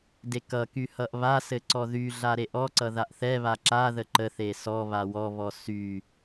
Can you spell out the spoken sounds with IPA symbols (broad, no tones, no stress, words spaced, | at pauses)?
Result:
dekʌky hʌʔβasɘ ǀɔðyɮa ɾeʔɔǀʌ ðaʔθɛβa ǁaðə ǃəθe sɔβa wɔβɔ sy